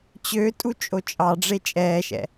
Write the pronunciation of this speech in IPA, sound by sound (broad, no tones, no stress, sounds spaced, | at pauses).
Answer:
t͡ɕ ø tʼ u t͡ʃʼ o t͡ʃʼ ɑ ɖ͡ʐ e t͡ʃʼ ɛː ʃ ɛ̰